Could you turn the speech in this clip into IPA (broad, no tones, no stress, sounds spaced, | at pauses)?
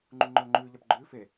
ŋ͡ǃ u ŋ͡ǃ ɵː ŋ͡ǃ ʉː ʎ a p ɡ͡ǃ ʉː f e